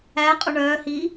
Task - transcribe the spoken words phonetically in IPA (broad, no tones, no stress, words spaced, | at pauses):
æqʼo ɳœːhiː